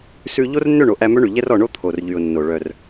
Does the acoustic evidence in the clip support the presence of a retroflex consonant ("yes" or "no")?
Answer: yes